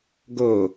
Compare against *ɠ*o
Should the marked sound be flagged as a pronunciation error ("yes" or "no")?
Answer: yes